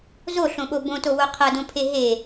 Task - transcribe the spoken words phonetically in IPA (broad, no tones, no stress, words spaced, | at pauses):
zoɬõɓo bõtowo qʰɐdõpʰe ɦe